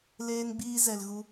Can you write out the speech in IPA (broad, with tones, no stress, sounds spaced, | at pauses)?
l eː˧ n ɡ͡b iː˧ z ɛ˨ l ɣ u˧